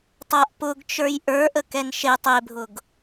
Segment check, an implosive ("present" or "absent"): absent